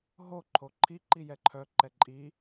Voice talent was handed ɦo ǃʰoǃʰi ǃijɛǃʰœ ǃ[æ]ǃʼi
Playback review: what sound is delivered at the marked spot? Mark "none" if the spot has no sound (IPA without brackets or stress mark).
ɛ